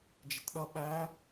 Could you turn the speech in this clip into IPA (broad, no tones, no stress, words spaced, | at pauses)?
d͡ʒɪtɗʌ ɓæ